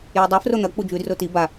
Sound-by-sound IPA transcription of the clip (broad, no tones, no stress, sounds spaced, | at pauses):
j i dˤ o f r o n̪ ɐ k͡p u d͡ʒ ʉ d r o t i b a